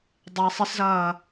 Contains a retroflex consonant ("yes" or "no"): no